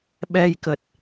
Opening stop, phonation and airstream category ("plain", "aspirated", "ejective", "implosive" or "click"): implosive